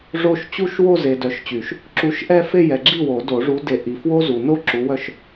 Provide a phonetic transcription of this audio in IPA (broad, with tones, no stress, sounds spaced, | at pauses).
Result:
ʐ o˥˧ ʃ t͡ɕ u˥˧ ʃ w o˥˧ z e˨ d œ˨˥ ʃ t͡ɕ y˨˩˦ ʃ | ǁ u˨˥ ʃ ʔ ɛ˥˧ f e˥˧ j ɛ˨ ɡ͡ǁ i˥˩ w o˨˩˦ d o˨˩˦ ʐ u˨˥ d e˨˥ ʔ i˨ f w o˥ z u˨ n o˥ ǁ u˨˥ w œ˥˩ ʃ